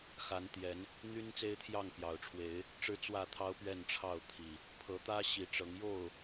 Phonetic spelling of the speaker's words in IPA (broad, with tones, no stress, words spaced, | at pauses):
xa˨˦nt̪jɛ˨˦n | n̪y˦n t͡se˦ɪ̯t̪ʰjɑ˥˨ŋ pjɑ˨˩ʊ̯ʈ͡ʂʰwe˨˦ɪ̯ | ʈ͡ʂɻ̩˦ t͡swä˥˨t̪ʰɑ˦ʊ̯ pɥɛ˥˨nʈ͡ʂʰɑ˥˨ʊ̯t̪ʰi˨˩ | pʰɤ˨˦t̪ä˦ ɕi˨˦ʈ͡ʂɤ˨˦ŋ jo˥˨ʊ̯